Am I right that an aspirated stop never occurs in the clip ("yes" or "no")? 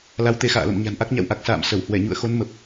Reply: yes